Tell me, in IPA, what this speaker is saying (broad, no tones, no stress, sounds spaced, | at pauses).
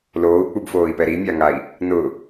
l oː u̯ k͡p u b f oː i̯ p ɛ ɾ i mʲ a ŋ a i̯ | n ʊ